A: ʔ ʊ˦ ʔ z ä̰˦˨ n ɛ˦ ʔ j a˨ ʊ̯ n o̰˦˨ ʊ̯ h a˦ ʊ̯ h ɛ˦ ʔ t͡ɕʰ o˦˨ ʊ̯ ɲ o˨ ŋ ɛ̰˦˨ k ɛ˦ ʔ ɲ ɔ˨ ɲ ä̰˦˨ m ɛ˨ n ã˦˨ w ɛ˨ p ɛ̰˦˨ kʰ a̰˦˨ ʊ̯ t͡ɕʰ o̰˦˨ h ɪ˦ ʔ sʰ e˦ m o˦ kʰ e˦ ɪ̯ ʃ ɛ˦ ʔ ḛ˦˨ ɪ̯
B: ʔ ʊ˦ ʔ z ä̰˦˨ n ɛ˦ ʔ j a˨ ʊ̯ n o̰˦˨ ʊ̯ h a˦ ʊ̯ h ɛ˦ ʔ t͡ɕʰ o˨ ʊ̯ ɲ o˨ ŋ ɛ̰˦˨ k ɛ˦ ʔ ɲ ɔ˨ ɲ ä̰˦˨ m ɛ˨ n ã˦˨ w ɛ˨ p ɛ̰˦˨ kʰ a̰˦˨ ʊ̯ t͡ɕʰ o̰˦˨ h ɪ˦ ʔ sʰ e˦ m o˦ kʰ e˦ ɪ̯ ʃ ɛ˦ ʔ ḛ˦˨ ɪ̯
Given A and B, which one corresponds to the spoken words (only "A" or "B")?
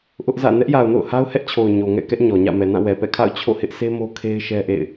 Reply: B